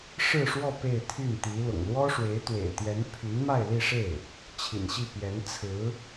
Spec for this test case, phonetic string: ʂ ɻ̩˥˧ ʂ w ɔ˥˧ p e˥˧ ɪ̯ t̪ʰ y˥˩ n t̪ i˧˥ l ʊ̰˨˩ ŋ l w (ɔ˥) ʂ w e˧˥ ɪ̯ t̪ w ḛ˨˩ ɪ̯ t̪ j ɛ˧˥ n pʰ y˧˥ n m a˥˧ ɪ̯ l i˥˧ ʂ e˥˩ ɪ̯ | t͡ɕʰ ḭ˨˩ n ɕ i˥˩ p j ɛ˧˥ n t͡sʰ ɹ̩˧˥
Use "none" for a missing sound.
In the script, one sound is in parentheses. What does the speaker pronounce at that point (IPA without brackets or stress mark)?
ɔ˥